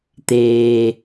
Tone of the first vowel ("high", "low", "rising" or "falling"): low